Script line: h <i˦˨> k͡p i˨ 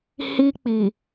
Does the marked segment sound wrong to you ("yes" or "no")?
yes